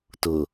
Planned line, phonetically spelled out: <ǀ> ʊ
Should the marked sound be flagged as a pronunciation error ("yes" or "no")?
yes